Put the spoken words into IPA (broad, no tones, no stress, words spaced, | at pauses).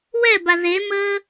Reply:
wɛba ðeməː